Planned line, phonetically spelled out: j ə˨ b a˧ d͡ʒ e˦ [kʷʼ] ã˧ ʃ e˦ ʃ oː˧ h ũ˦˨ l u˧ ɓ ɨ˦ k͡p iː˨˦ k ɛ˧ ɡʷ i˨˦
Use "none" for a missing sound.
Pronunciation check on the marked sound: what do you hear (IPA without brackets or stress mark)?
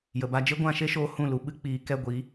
ɡʷ